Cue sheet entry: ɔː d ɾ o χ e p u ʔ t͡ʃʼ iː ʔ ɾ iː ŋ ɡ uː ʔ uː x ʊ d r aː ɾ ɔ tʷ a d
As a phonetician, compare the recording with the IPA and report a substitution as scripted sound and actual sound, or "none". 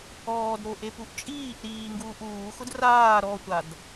χ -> ʔ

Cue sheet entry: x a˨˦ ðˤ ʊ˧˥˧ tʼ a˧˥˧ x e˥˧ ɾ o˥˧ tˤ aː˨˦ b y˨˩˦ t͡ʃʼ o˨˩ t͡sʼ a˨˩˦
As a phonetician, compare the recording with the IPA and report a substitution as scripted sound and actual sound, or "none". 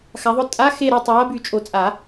none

